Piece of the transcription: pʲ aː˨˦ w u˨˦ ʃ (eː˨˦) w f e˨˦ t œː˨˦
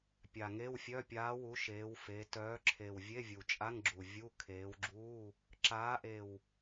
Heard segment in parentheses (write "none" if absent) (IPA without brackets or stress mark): eː˨˦